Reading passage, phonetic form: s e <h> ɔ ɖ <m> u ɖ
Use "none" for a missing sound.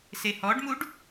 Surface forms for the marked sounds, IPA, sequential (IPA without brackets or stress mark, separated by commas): h, m